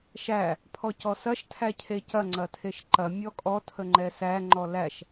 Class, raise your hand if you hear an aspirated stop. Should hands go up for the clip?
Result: yes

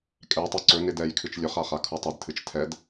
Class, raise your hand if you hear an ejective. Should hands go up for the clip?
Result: yes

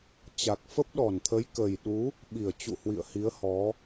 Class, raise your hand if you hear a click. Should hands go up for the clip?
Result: no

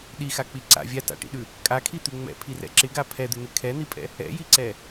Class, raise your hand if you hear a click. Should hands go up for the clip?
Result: yes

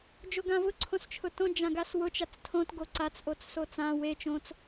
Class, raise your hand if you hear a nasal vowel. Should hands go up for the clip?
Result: yes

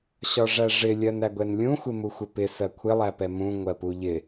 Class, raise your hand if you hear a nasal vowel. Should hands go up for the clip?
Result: yes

